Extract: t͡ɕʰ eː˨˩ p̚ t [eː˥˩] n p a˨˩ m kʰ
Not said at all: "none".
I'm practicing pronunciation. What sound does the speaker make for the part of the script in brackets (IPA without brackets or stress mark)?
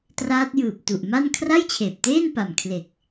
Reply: eː˥˩